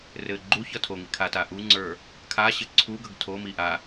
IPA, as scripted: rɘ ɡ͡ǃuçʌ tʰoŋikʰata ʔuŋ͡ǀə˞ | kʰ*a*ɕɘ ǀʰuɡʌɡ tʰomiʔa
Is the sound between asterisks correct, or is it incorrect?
correct